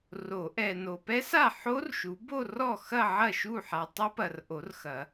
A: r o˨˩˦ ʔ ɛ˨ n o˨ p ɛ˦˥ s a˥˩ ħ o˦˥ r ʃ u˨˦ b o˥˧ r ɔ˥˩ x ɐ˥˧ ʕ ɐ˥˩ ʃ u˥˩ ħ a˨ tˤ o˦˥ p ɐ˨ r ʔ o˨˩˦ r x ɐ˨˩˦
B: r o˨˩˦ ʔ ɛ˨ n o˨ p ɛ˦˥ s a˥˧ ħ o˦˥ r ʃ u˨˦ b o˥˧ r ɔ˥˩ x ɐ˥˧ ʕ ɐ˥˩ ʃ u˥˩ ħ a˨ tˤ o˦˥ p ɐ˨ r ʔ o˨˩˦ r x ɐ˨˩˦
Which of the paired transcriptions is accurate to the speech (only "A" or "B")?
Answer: A